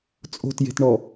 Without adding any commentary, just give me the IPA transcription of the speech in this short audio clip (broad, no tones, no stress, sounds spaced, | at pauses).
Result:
t͡sʼ o̤ t j e̤ t ɳ ɔ